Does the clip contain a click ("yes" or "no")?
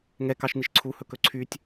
yes